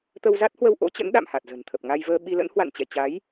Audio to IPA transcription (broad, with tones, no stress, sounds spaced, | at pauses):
t̪ ə˧ w z a˦˥ t̚ h w ə˧ w ʔ o̰˧˥ t͡ɕ ə̰˧˥ n ɗ a̰˧˨ m h a˨˩ t̚ z ə̤˨˩ n t̪ʰ ə˨˩ p̚ ŋ a˧ j v əː˧ ɓ i˧ l ə̰˧˥ n h w a̰˧˨ n t͡ɕ ɛ̰˧˨ t͡ɕ a˨˦ j